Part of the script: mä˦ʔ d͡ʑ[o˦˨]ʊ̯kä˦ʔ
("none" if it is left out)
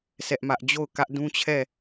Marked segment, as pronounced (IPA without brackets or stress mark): o˦˨